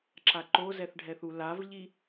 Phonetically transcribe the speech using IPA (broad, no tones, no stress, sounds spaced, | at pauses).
ǁ a ǃ o z ɛ θ ɖʱ ɛ θ u l a v ʎ i